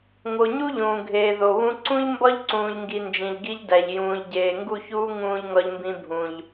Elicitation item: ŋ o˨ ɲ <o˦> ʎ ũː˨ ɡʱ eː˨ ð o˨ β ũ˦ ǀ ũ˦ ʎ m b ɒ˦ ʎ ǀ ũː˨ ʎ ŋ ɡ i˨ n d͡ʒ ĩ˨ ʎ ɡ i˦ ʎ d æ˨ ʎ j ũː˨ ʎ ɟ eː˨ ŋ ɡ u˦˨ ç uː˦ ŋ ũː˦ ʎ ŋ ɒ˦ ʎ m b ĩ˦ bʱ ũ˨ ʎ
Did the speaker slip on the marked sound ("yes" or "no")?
yes